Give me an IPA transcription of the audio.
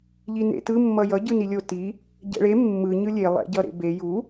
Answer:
ʎ i n ḛ t ɯ mː ʌ j ʌ ɟ ɯ n i lʲ o t i | ɟ ɛ̰ ɭ e mː ɯ ɲ ɯ lʲ e lˠ ɛ̰ ɟ ʌ ɾ ḛ b e j u

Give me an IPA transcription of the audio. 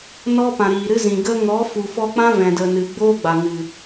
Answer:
n ɔ˦ p ã˨ ɾ iː˨ ɾ ɨ˦ z ĩ˨ ɡ ə˦ ŋ ɔ˨˦ f u˨ f ɔ˧ k͡p ã˦ v ɛ̃˨ d ə˨ n ɨ˨ ɡ͡b oː˦ ɡ͡b a˨ ŋ ɨ˨

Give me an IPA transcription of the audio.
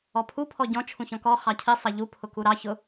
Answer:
ɔ pʰ u pʰ ɔ ɟ ɔ̃ t͡ʃʰ ũ ç ɔ̃ k ɔ χ ɑ cʰ i sˤ ɑ ʎ u pʰ ʊ k u ɾ ɑ ç ʊ

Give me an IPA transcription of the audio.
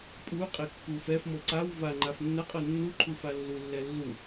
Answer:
pʼ u qʼ ɛ kː u f ɛ f m ɤ ǀ a w v a ŋ͡ǃ a f nː ɐ qʼ ɤ nː u ǃʰ u f a lː u lː ɛ lː u

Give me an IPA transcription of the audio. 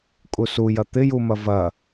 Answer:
kʼ u s u j ɐ t̪ ɪ j u m ɐ v ɐ

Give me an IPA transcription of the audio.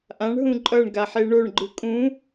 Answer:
ʔ ã ɳ ɦ ũ ǃʼ ʌ ɳ ɡ a ħ e ɳ o ɳ ɡ͡ǃ ɯ kʼ ũ

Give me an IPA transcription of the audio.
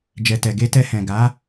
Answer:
d͡ʒ ɛ˧ t ɛ˧ ɡ e˧ t ɛ˧ h ɛ̃˨ ɡ a˨˦

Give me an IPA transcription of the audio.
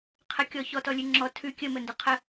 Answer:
qʰ ə kʲ ɔ ç ɔ t ɔ lʲ ʉ ŋ͡ǁ ɔ tʰ ʉ kʲ ə m ə n d ə qʰ ə

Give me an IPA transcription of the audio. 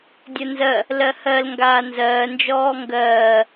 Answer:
dʲ ɜ n z ɜ | l ɜ h ɜ l ŋ ɡ aː n z ɜː n d͡ʒ ɔː ŋ ɡ ɜː

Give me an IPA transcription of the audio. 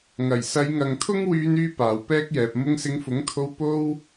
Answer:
ŋ ɐ˨˩ j s ɐ˨˧ j ŋ ɐ˨ ŋ t̪ʰ ʊ˥ ŋ w yː˧ n yː˥ p aː˨ w p ɛː˥ k̚ j ɛː˨ p̚ m ʊ˧ ŋ s ɪ˨˧ ŋ f ʊ˨˥ ŋ t̪ʰ o˧ w p o˥ w

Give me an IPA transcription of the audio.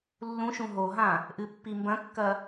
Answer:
lː ũ ʃ ũ ɦ o ɦ ã | ʔ ɨ pː i m b ɐ̃ kː ɐ

